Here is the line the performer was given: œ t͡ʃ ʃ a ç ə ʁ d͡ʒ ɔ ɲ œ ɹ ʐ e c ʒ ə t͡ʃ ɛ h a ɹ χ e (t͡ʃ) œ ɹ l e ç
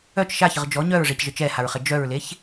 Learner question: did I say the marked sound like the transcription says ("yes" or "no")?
no